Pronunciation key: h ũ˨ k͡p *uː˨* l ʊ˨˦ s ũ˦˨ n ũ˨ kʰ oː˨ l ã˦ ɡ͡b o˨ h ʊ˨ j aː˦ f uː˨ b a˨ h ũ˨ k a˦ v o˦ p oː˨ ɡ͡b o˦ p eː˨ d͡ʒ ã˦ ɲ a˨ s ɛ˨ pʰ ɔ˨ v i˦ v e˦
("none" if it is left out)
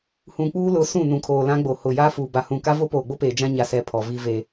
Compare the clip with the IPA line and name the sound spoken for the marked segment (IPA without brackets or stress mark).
uː˦